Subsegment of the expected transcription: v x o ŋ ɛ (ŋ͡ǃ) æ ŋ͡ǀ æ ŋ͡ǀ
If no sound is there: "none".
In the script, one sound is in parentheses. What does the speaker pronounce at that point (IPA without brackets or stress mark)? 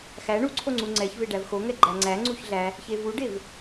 ɡ͡ǃ